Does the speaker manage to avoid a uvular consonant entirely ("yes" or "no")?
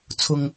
yes